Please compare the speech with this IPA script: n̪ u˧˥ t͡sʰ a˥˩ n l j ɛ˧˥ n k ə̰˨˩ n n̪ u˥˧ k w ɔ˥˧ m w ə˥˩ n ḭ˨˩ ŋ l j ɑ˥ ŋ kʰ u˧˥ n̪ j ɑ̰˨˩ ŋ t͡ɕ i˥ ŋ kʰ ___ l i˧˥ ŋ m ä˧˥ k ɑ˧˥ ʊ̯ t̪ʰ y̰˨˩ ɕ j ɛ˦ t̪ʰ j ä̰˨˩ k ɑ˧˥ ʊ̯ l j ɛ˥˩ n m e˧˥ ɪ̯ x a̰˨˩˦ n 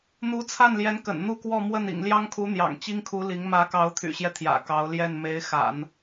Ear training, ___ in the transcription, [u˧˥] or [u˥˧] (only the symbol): u˧˥